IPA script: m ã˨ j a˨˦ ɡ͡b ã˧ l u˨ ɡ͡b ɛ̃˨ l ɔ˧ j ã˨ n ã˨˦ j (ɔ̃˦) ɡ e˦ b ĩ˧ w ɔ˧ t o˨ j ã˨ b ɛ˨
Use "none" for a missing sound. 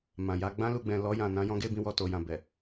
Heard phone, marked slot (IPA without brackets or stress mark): ɔ̃˧